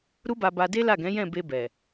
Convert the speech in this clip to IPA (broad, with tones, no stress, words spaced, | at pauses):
ɾu˦ba˧ba˧ de˦la˦˨ɡɛ̃˨˦ jɛ̃˦˨be˧bɛ˨